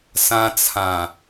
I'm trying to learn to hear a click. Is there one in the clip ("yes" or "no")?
no